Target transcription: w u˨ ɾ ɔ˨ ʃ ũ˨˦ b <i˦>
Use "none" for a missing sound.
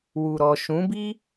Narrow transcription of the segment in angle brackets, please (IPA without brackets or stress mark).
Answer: i˦